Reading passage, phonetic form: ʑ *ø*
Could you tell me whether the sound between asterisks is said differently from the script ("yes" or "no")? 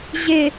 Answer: yes